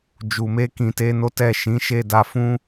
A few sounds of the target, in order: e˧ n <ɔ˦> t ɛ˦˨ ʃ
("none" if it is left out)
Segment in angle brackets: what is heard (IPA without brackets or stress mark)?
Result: o˦